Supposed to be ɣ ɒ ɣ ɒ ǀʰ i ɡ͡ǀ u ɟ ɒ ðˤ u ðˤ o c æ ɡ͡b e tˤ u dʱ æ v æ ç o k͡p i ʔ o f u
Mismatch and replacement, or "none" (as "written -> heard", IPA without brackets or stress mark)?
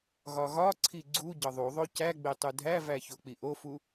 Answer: none